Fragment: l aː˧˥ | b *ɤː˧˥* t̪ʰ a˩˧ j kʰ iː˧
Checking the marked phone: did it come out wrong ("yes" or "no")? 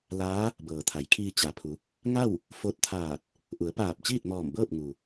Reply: yes